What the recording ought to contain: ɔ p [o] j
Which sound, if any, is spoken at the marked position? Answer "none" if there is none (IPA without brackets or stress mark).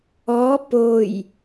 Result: o